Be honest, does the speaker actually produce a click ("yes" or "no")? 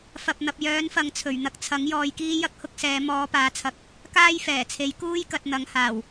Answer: no